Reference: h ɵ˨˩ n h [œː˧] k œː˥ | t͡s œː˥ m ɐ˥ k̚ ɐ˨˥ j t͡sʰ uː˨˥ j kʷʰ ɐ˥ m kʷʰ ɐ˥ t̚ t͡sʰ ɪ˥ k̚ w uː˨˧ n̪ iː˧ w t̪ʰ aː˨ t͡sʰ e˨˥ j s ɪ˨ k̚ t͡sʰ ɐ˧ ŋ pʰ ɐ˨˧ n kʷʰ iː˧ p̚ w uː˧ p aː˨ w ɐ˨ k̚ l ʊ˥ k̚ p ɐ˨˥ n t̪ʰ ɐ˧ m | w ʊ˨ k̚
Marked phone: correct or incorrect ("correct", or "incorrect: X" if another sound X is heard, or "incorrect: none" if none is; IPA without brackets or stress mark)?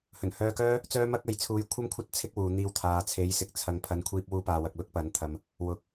correct